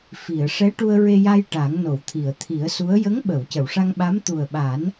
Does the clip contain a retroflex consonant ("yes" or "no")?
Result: yes